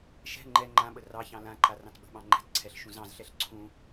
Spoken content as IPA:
ʃ ɛ̤ ŋ͡ǃ ɛ ŋ͡ǃ ã ɓ ə r ɑ ç ɑ̃ l ã ǃ a r ɑ̃ t ɓ ə̤ ɓ ɑ̃ ŋ͡ǃ ɛ̤ t ǀʰ ɛ ɬ ʃ ũ z ɑ̃ z ɬ ɛ ɬ ǀʰ ũ

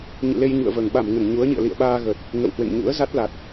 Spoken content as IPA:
ɲ ɨ̰˧˨ l e˧ j ɲ ṵ˧˨ ə̯ v əː˨˩ ŋ ɓ a˧˩ m ŋ ə˧˩ n ɲ u˨˦ ə̯ ɲ ḭ˧˨ ə̯ l ḭ˧˨ ə̯ ɓ aː˧ ɣ ə˨˩ t̚ | ŋ ə̰˧˨ w h w ḛ˧˨ ŋ ɲ ṵ˧˥ ə̯ z a˦˥ t̚ l a˨˩ t̚

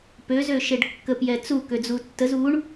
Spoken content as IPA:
p ø z ø ʃ e ɖ kː ə p j ɛ t͡s u k ø d͡z u tː ə z u ɳ

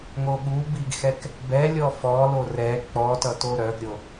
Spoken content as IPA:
ŋ o ɠ u b i ɡ x ɛ k | b ɛ lʲ ɔ f ɔ l o r ɛ k͡p ɔ t ʌ t o ɾ œ ɡ ɾʲ o

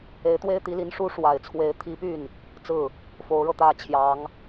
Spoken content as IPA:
e˧˥ ɪ̯ t̪ w e˥ ɪ̯ t̪ i˧˥ l i˧˥ n ʂ u˥ ʂ w a˨˩ ɪ̯ t͡sʰ w e˧˥ ɪ̯ t̪ʰ i˧˥ p y˥˩ n | t͡s ɹ̩˥˩ | f o˧˥ ʊ̯ ɻ ɤ˧ t̪ ä˥ t͡ɕʰ j ɑ˧˥ ŋ

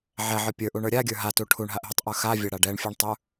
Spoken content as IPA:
ʕ ɛ ʕ ə˞ pʲ ə˞ ʔ u ɳ ə˞ ɾʲ a ɡʲ ə˞ ɦ a t u ʈʰ u ɳ ɦ a ʔ ɦ u tˤ ʔ ə˞ x a vʲ a ɽ a ɖ ɛ ɳ fʲ ə˞ ɳ tˤ ə˞

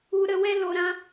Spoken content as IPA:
u˧ ɾ ə˧ w ɛ˦ l o˧ ɾ ã˦

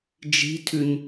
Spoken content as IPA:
d͡ʒ i̤ tʰ ʉ ɲ

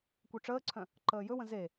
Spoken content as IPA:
kʷ œ ʈ͡ʂ əː ǀʰ œ̃ | ǃ əː j ɵ w ə̃ z e

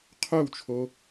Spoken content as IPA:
qʰ œ w t͡ʃʰ o

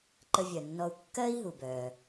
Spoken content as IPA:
ǃ ə˧ vʲ œ˩ nː ɔ˧ u̯ kː ɜː˥ i̯ ɦ u˩ b œː˩

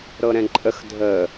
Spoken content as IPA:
ɾ ɤ ɾ ɛ̃ ǃʼ ə x dʱ ə

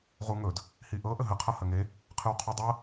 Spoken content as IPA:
ʁ u ŋ ɵ d | h i ʔ ɤ ʔ ə ɦ ə qʰ ʌ h ə ŋ e | qʰ ɯ w qʰ u dˤ ɤ

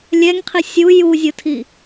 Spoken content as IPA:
lʲ ɛ ŋ qʰ i sʲ u j u zʲ ʊ tʰ i

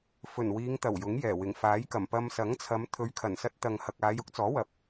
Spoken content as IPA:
f ɵ˨˩ n w iː˨˧ ŋ t̪ ɐ˨˩ w j ʊ˨˥ ŋ j ɛː˨˩ w ɪ˨˩ ŋ f aː˨˥ j k ɐ˨˩ m p ɐ˧ m s ɐ˨˥ ŋ t͡sʰ ɐ˨˧ m t̪ʰ ɵ˨˧ ɥ kʰ ɐ˨˩ n s ɐ˧ t̚ t̪ ɐ˨ ŋ h ɐ˨ k̚ aː˨˧ j ʊ˥ k̚ t͡s ɔː˨˥ w ɐ˨ p̚

